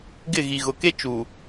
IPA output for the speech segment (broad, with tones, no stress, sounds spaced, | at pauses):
ɡ ɪ˦˨ ɣ i˨ ɣ ʊ˨ k e˦ t͡ʃ u˨